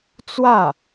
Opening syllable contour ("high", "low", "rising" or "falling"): falling